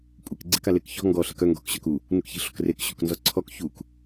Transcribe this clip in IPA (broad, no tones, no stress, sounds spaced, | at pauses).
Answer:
kʷʼ e k ɡ͡ǀ e k a l e k ç ɔ̤ ŋ ɡ ɔ ɬ e k œ ŋ ɡ ɔ̤ k ɕ œ k u | n u k ç i̤ ɬ ɔ̤ k r e k ɕ u k n z ɔ ǀʰ ɔ k ç u k